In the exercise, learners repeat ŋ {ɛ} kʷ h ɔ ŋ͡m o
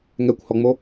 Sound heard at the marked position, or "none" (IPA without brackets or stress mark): ɛ